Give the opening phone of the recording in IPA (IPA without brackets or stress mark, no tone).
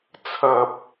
t͡sʰ